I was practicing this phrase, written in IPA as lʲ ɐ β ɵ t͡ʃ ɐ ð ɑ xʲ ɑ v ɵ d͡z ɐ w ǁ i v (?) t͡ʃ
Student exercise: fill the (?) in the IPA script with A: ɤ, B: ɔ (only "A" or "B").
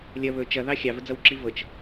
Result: A